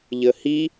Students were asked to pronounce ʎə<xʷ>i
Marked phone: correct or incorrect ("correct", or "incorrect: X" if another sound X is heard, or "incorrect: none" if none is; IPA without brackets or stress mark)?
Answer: incorrect: h